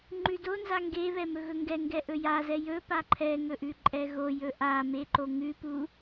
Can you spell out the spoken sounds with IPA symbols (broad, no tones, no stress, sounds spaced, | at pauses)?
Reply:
ŋ͡ǃ ʉ d o n z a ŋ ɡ e β ɛ m ɵ ɣ ɵ ŋ ɡ ɛ ŋ ɡ ɛ ʔ ɵ j a z ɛ j ɵ p a ǃʰ ɛ ŋ ɵ ʔ ʉ ǃʼ ɛ ɣ o j ɵ ʔ a m e ǃ o ŋ ʉ p u